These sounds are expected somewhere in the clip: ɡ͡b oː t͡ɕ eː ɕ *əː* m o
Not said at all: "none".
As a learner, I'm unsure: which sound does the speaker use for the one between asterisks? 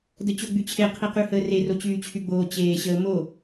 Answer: əː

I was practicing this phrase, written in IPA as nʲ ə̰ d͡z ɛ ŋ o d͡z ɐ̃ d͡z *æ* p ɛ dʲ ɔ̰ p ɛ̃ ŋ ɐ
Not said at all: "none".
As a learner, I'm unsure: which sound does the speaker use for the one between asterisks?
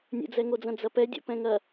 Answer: ɐ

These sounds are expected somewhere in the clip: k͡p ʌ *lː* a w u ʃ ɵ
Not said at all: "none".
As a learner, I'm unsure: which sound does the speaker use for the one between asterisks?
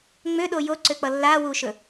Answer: lː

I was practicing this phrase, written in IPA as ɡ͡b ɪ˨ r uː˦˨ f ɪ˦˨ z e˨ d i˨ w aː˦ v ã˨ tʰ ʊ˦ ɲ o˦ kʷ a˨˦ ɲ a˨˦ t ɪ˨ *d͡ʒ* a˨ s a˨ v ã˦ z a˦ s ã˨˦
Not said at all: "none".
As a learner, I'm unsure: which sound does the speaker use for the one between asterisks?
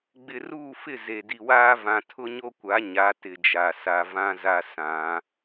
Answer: d͡ʒ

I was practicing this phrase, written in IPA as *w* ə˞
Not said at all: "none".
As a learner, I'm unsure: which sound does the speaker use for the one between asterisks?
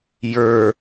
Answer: j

